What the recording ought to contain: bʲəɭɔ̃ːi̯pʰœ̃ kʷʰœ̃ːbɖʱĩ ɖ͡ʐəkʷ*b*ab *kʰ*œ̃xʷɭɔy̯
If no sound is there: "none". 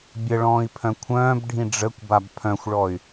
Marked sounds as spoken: b, pʰ

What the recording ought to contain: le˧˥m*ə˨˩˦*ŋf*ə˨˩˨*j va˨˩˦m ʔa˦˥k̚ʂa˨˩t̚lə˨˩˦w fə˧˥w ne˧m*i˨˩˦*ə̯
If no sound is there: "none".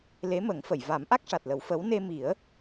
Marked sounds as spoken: ə˨˩˦, ə˨˩˨, i˨˩˦

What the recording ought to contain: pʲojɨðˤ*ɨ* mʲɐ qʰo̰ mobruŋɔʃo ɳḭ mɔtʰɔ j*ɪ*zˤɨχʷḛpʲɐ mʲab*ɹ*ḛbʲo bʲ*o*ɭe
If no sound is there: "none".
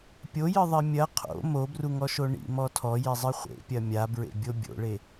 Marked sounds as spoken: i, i, ɹ, o̰

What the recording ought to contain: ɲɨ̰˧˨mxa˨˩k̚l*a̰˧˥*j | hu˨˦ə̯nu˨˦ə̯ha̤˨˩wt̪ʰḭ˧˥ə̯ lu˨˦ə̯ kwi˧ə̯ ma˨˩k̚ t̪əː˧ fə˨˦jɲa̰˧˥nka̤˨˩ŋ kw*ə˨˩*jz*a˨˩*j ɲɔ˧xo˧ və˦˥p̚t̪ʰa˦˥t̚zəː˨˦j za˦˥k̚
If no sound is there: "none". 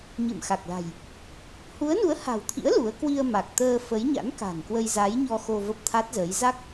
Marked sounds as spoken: a̤˨˩, ə˧, a˨˦

